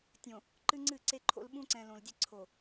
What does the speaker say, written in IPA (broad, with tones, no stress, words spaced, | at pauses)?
tʲõ˨ | ǃɨ˦ŋ͡ǀɨ˦˨ǀe˦ǃʰo̰˦l ɓũ˦ǀɛ̃˨ lõ˨ldʲe˦ ǀʰo˨